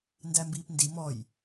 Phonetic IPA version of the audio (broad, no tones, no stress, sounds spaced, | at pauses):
n d æ m b iː p n d i m ɔ j